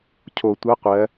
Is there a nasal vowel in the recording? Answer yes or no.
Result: no